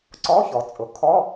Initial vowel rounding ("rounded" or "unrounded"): rounded